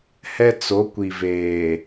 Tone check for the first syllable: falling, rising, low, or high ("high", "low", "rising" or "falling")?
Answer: high